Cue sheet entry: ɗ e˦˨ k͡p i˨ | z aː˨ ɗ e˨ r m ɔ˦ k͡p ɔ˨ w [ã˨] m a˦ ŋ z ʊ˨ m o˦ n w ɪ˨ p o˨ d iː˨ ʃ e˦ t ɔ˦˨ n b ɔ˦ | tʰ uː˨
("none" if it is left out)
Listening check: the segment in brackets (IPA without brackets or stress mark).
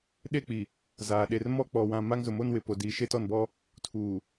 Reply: ã˨